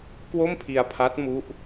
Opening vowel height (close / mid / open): mid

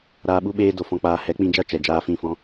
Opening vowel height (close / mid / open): open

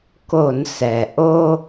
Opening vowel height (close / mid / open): mid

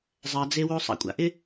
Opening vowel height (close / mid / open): open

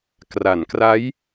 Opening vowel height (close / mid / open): open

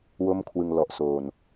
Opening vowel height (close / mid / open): mid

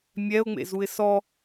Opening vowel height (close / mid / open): mid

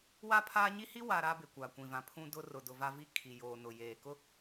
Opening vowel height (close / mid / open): open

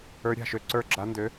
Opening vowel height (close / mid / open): mid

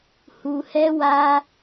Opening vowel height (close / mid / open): close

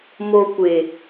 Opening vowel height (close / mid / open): mid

